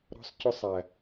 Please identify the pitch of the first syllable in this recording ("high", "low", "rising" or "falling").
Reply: high